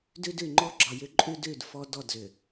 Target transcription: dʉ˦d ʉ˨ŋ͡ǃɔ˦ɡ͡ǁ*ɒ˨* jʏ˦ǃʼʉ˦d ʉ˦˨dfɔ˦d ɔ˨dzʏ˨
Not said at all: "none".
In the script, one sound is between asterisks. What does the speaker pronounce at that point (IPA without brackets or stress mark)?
ɒ˨